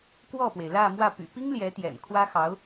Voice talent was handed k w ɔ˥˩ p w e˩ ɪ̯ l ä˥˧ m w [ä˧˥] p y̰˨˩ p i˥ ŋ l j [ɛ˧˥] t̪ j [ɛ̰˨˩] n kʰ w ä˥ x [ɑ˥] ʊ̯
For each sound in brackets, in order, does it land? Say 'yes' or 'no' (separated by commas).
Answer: no, yes, yes, no